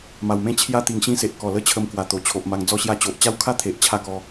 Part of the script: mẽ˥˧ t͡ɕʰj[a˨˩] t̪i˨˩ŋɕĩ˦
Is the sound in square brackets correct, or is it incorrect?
incorrect